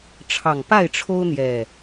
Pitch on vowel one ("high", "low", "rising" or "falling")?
low